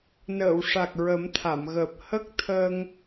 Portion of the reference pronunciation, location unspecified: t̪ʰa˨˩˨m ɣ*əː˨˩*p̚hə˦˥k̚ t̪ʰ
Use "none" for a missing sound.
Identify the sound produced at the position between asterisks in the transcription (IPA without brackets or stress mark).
əː˨˩